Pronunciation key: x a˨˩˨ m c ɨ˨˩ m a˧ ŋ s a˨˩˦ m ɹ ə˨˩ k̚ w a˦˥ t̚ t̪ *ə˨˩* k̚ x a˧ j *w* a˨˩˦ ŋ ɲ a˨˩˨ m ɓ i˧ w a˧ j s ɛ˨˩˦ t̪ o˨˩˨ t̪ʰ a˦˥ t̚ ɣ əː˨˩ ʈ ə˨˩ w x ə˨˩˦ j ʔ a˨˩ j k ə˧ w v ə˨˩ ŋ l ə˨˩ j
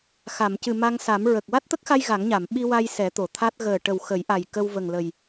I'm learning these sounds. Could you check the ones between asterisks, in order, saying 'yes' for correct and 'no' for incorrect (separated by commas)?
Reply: no, no